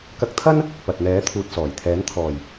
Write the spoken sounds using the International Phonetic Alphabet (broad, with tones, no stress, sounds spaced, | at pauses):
k ɐ˧ k̚ t̪ʰ ɐ˥ n | p ɐ˨ t̚ n̪ ɛː˨˥ t̪ʰ uː˨ t̚ s ɔː˨˩ j t̪ʰ ɛː˨˥ n t̪ʰ ɔː˨˩ j